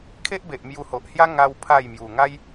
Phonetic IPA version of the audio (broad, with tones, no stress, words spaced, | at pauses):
kʰe˦ʔbe˨ʔ mju˧ho˨ʔhja˦ ŋa˦wpʰa˥˧j mju˨˩ŋa˦j